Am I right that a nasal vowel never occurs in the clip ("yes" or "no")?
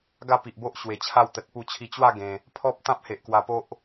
no